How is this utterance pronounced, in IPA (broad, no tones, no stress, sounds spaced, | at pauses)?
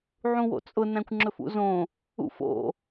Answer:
ʕ ũ w o̰ t͡sʼ ʊ n æ̃ kʷ ŋ͡ǁ ɵ f ṵ z õ | ṵ f o̰